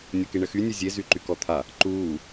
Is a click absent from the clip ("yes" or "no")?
no